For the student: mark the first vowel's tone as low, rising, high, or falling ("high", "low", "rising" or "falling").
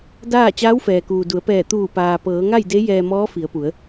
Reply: falling